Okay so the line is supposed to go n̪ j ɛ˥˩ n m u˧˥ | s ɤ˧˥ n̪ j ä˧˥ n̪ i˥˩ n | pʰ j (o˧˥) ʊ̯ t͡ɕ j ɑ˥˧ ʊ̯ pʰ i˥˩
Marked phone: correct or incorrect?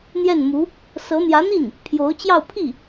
correct